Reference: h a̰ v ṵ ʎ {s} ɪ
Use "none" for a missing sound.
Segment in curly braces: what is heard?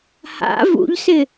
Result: s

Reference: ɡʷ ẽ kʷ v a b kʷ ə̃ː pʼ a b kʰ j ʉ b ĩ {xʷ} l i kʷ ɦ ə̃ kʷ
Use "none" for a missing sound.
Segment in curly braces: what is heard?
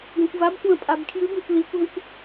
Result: kʷ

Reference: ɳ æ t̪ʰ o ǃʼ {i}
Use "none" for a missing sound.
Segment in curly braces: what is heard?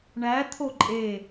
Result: e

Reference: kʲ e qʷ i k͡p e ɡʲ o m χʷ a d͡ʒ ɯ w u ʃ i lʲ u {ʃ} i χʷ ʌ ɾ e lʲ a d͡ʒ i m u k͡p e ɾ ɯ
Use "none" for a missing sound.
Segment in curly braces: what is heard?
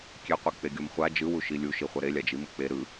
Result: ʃ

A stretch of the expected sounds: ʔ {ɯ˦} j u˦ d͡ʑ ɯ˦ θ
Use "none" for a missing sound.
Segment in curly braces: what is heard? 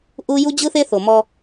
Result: u˦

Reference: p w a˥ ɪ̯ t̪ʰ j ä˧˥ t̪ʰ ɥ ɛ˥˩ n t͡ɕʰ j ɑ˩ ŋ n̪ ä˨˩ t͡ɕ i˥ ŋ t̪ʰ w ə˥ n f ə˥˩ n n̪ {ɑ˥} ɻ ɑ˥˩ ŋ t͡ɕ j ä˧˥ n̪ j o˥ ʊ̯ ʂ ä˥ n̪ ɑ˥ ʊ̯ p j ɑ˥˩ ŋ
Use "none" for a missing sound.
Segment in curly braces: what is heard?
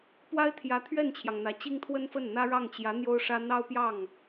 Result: ä˥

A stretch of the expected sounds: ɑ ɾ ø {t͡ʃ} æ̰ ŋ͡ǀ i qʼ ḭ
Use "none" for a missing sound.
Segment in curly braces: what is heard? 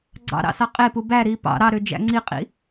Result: d͡ʒ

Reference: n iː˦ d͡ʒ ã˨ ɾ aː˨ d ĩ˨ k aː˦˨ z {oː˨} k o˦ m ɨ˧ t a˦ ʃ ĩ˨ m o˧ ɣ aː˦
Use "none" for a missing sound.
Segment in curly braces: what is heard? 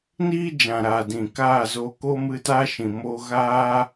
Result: oː˧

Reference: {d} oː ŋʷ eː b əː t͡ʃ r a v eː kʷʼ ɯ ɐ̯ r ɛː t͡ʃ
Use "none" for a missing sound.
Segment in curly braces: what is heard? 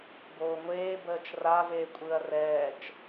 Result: b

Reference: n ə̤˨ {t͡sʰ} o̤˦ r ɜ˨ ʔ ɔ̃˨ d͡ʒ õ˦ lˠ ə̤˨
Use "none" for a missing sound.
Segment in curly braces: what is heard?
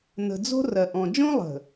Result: d͡z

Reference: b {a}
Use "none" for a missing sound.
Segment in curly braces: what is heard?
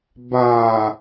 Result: a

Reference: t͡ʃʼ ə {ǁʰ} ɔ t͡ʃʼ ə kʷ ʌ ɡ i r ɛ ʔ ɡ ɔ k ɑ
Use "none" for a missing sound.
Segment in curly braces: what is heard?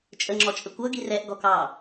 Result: ŋ͡ǁ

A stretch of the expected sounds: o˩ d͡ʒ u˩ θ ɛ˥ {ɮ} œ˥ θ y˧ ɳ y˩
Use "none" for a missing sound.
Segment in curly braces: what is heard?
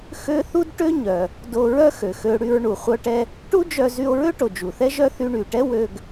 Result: ʒ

